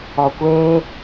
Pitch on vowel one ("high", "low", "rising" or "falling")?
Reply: low